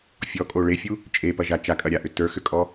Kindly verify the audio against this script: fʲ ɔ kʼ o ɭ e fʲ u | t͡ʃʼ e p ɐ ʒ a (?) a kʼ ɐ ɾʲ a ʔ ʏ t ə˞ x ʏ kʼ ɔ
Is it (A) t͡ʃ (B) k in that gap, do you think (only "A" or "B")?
A